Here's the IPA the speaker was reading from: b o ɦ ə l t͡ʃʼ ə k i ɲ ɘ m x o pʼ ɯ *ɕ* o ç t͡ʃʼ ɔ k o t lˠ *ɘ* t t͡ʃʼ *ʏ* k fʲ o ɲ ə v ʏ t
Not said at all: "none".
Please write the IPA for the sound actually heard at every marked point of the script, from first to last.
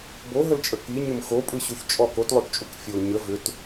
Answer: ɕ, ø, u

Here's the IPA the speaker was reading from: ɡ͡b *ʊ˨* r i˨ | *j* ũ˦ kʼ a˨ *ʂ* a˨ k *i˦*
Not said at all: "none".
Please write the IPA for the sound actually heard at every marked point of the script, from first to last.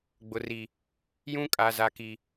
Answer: ʊ˨, j, z, i˨

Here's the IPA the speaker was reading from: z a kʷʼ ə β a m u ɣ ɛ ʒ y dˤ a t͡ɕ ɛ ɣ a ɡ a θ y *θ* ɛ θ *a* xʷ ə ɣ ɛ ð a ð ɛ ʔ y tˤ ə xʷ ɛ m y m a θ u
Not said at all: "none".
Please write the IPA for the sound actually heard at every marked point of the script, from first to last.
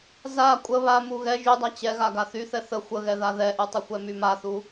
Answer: θ, ə

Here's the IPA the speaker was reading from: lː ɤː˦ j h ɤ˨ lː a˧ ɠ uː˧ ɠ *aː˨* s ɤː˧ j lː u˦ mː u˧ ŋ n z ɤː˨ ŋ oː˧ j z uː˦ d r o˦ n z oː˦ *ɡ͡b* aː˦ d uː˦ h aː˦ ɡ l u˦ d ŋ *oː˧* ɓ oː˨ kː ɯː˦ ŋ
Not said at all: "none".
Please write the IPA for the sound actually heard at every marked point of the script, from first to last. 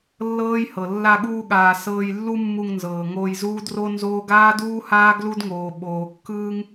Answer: aː˨, ɡ, oː˨

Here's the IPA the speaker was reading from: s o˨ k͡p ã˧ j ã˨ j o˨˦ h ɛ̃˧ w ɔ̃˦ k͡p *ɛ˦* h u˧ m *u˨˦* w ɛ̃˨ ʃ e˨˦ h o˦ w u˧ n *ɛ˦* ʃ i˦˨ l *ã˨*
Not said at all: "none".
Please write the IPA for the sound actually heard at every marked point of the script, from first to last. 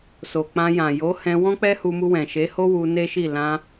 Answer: ɛ˦, u˧, e˦, ã˧

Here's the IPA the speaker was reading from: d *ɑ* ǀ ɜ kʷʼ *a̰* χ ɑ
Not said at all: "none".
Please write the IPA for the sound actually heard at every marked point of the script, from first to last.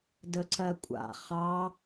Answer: ə, a̰

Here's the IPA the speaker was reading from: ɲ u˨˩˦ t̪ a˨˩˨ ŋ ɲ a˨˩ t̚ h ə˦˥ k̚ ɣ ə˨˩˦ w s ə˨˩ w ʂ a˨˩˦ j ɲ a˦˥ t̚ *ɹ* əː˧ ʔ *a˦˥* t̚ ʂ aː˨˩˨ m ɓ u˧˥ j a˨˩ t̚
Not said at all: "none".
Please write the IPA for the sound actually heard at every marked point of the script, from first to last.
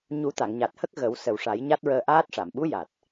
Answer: ɹ, aː˦˥

